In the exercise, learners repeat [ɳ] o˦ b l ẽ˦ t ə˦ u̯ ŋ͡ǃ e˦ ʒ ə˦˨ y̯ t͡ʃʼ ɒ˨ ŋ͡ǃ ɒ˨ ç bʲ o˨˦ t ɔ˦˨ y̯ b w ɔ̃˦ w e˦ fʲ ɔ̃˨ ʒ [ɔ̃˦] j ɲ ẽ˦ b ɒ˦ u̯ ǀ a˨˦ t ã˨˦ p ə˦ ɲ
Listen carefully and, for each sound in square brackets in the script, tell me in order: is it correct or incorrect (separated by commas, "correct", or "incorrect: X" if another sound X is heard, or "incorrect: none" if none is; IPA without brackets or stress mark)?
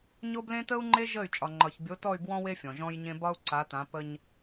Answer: incorrect: ɲ, correct